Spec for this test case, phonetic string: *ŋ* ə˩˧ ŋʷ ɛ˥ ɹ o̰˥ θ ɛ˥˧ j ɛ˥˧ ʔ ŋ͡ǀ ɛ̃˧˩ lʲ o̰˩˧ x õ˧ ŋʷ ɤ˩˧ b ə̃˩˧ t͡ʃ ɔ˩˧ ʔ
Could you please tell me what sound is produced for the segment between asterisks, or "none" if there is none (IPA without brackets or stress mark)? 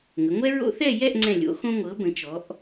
ŋ